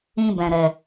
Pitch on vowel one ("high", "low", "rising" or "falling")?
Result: high